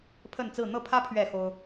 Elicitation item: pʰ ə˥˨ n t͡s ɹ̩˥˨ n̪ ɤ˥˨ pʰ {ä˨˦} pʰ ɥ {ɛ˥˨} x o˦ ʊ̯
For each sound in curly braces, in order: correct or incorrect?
incorrect: ä˦, correct

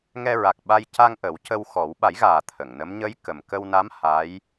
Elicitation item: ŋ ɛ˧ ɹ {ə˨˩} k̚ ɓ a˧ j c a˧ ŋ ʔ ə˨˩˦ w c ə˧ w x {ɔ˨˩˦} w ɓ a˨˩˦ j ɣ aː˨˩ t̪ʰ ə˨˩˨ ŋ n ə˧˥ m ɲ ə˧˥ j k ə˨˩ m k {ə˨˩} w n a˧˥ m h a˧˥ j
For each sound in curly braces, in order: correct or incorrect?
incorrect: a˨˩, correct, incorrect: ə˧

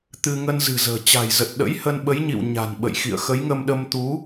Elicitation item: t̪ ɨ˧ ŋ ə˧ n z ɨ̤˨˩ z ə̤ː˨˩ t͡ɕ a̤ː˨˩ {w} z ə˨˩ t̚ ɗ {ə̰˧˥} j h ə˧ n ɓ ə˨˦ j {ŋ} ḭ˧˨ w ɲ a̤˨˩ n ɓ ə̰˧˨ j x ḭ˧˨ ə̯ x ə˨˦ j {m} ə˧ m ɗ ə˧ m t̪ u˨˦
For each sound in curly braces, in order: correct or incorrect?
incorrect: j, correct, incorrect: ɲ, incorrect: ŋ

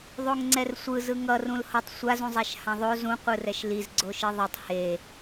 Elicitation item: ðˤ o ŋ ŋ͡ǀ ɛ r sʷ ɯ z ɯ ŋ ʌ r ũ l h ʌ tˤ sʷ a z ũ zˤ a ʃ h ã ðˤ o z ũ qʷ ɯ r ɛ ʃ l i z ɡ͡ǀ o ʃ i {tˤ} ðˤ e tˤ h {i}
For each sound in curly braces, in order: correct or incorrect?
incorrect: none, incorrect: e

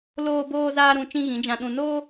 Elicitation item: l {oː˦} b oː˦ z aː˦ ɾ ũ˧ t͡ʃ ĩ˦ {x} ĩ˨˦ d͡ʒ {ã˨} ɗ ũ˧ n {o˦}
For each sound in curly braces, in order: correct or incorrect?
correct, incorrect: ɣ, incorrect: ã˧, correct

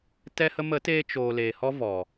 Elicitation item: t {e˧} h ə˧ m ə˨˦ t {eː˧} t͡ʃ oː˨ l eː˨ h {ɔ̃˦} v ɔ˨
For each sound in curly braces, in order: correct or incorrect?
incorrect: ɛ˧, correct, incorrect: ɔ˦

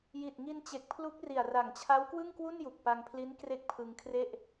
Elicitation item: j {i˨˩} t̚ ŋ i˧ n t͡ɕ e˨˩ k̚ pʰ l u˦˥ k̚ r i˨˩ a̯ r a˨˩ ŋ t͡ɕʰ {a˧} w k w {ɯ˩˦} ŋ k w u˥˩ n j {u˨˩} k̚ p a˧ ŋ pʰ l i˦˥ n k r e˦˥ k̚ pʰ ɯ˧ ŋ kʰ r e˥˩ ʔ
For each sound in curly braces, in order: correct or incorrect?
correct, incorrect: a˦˥, incorrect: ɯ˥˩, correct

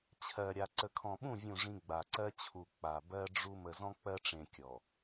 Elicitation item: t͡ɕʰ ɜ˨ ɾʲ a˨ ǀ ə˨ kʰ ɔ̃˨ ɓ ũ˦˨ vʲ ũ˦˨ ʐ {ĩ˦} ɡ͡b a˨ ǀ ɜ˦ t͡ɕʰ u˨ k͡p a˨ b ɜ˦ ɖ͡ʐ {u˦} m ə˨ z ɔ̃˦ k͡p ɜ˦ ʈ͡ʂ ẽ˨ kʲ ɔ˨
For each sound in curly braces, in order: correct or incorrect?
correct, correct

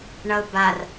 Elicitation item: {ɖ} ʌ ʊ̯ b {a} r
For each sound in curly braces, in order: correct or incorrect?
incorrect: ɳ, correct

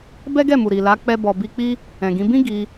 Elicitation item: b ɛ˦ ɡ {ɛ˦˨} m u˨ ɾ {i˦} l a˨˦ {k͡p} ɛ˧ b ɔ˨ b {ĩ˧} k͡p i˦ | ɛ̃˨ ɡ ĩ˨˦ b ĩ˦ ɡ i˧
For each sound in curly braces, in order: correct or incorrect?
correct, incorrect: i˨, correct, incorrect: i˧

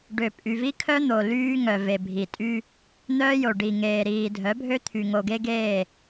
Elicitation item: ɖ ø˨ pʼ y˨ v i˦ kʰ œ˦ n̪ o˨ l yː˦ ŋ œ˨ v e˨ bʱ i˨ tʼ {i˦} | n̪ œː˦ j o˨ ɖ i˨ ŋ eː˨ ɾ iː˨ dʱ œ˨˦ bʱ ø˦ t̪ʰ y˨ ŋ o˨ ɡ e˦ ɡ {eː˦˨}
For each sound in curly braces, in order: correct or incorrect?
incorrect: y˦, correct

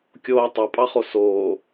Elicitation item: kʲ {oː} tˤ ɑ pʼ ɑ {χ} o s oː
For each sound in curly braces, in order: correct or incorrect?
correct, correct

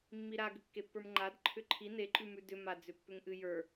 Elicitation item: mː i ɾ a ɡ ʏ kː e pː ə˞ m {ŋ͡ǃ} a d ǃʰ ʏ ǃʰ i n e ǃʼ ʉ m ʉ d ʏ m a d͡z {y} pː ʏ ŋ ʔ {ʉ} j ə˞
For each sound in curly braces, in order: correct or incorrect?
correct, incorrect: ʏ, incorrect: ɨ

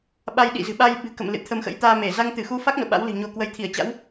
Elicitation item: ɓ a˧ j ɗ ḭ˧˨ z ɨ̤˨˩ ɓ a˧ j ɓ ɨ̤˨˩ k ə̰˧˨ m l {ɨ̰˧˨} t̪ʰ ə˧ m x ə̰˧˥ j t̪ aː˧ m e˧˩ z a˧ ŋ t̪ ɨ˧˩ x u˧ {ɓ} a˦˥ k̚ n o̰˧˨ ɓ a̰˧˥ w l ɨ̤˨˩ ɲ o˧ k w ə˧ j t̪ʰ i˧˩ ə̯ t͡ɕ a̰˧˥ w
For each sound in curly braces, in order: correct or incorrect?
correct, incorrect: f

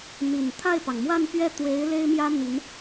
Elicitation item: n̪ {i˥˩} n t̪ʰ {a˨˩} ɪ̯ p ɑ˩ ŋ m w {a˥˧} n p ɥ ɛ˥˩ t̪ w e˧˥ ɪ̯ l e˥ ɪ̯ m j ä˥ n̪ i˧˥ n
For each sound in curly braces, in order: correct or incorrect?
incorrect: i˨˩, incorrect: a˥˩, correct

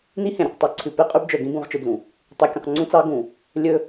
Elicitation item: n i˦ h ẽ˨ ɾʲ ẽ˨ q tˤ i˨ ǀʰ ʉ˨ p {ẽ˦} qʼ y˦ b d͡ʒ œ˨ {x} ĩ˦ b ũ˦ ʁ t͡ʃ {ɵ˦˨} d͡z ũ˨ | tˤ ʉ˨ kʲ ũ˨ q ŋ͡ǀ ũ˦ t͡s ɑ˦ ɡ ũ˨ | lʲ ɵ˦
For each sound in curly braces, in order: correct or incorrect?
incorrect: e˦, incorrect: ɡ, incorrect: ɵ˦

